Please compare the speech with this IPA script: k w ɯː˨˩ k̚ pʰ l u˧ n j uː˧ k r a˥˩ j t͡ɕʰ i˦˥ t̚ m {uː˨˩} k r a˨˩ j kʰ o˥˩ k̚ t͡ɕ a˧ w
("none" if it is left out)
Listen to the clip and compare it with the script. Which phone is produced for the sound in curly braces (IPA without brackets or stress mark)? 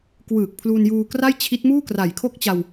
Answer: uː˥˩